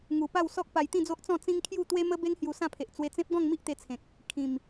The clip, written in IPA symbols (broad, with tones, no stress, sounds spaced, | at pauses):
ŋ u˨˩ p a˥˧ w s ɔ˦ k̚ p a˧ j t̪ ĩ˥˧ d͡z o˦ ʔ t͡s ɔ̃˥˧ t͡s ĩ˦ ŋ kʰ j u˥˧ t̪ w e˦ m ə˦ b e˦ ŋ h j u˧ s ã˥˧ pʰ e˨ ʔ t͡s w e˧ t͡s ẽ˦ p̚ ɡ ɔ̃˥˧ ŋ m i˦ ʔ t̪ e˧ t͡sʰ ẽ˨ k̚ | kʰ ĩ˨˩ m